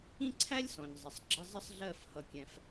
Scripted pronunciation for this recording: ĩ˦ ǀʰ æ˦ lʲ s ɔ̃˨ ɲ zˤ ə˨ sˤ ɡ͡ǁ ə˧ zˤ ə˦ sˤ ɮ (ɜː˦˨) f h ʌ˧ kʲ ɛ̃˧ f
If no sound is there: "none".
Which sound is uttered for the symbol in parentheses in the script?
ɜ˦˨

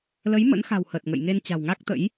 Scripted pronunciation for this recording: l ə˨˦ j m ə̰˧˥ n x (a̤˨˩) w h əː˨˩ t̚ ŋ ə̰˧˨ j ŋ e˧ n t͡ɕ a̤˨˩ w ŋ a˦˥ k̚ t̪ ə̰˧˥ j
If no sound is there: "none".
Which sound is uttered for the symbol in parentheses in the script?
a̤˨˩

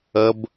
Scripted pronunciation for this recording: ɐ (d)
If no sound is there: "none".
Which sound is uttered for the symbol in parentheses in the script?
b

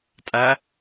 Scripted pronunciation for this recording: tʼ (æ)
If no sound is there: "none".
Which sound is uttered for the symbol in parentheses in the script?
æ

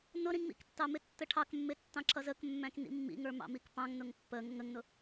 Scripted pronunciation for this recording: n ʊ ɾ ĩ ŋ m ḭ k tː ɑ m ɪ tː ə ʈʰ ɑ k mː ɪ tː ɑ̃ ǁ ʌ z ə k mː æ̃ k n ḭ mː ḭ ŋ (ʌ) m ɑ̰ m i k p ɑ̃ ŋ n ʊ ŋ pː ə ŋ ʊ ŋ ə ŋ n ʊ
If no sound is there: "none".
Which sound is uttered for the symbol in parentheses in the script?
ə˞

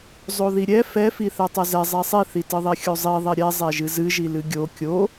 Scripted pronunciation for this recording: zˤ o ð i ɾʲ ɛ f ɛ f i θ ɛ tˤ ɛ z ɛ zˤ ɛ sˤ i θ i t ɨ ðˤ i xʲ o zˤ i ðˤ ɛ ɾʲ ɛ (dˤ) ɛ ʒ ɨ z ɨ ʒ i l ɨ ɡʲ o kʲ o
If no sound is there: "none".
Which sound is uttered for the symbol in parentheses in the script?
zˤ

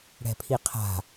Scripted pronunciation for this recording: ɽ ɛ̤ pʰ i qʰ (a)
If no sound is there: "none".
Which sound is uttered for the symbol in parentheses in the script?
a̤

